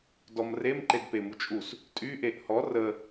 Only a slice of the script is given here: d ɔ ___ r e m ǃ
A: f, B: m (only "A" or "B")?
B